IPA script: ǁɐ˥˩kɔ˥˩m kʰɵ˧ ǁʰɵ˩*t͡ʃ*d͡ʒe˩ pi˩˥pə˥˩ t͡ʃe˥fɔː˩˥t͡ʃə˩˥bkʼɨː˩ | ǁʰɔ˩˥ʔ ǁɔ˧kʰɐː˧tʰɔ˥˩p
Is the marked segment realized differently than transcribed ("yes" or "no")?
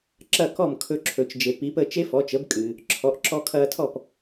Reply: no